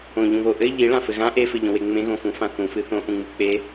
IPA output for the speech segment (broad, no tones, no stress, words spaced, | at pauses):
õʎũβo ʔɘ ʎiɭãfɘ ɣã ʔefɘʎõwe ŋ͡mẽɣõfũfã θũfɨ θõʔũŋ͡mɨ k͡pe